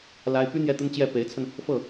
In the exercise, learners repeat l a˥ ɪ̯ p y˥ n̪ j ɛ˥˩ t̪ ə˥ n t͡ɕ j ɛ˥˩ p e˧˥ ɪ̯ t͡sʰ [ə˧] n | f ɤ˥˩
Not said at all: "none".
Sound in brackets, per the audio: ə˧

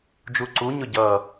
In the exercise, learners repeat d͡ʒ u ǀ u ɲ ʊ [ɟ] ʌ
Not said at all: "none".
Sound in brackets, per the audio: ɟ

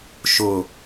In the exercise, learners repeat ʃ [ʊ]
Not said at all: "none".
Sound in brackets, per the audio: ʊ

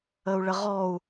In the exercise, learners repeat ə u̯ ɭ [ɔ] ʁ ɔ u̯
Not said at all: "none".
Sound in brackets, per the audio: ə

